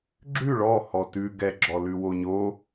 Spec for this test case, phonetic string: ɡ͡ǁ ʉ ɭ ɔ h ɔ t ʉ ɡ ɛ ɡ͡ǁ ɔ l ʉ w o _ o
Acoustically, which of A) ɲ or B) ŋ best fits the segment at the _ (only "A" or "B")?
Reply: A